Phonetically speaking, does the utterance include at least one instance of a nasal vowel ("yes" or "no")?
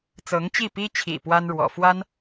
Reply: no